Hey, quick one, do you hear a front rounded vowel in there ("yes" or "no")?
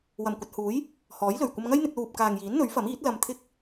no